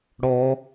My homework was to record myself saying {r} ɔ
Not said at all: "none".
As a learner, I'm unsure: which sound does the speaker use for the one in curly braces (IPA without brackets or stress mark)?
ɽ